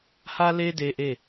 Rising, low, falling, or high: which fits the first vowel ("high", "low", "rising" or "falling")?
high